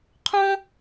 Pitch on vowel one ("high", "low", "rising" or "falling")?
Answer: high